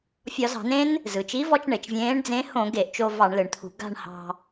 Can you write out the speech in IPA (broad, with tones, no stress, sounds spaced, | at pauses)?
fʲ ɒ˧˩˧ z ɑ̤˧˩˧ n ẽ˦˥ n | z ɯ˩ t͡ʃ i˨˥ v ɔ˧ t͡ʃ ɳ e˩ t͡ʃ vʲ ẽː˨˥ ɳ d͡z ẽ˨˥ h õ˧˩˧ ɡ e˧˩˧ ʔ t͡ʃ o˧ v ɑ˧˩˧ ɳ l ɯ˩ ɳ t̪ʰ ṳ˧˩˧ ɡ a̤˥˧ ɳ h ɑ̤˧